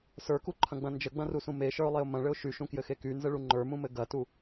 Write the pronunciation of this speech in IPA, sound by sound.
sə˞kuǃʰɐ̃ɡ͡bɐ̃ nd͡ʒəɡ͡bɐ̃rusũ meʃə˞ʊ̯lˠeʊ̯ mɐ̃ɭɘʊ̯ ʃyʃũkjɘxe kynzəɭu ŋ͡ǃə˞mũmɘ ɡɐtu

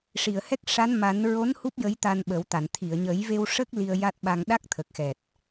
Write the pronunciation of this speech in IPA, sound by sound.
ʂi˨˩˨ə̯hɛ˦˥k̚ʂa˧˥n ma˨˩˦n ɹo˧˥n hu˦˥p̚ jə˧˥jt̪a˧nɓə˨˩˦wt̪a˨˩˨n t̪ʰi˨˩˨ə̯ɲə˨˩˦jve˧wʂə˦˥k̚ li˧ə̯ja˦˥t̚ɓa˧ŋ ɗa˦˥k̚t̪ʰə˨˩k̚xɛ˨˩t̚

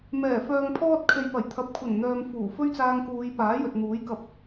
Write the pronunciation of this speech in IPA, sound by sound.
mɛː˨˩ fœː˨ŋpʰɔː˧t̚kʰe˨j pɐ˨˩jt̪ʰɐ˨˥p̚ kʷʰɐ˨˩nn̪œː˨m fuː˨˩ fɵ˥ɥt͡saː˧ŋkuː˨˧j paː˨˥jɵ˨t̚ n̪uː˨˥jkɐ˧p̚

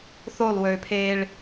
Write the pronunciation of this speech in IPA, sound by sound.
θolˠwøːpʰeːɭ

